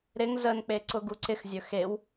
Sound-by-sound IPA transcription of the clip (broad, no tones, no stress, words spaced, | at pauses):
ɾɪŋ zənk͡pe ǀʊɡuǀɪxzʲɵ xew